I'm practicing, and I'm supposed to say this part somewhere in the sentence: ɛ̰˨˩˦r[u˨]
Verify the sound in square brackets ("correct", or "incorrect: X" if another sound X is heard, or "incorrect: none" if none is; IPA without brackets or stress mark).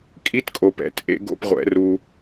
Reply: correct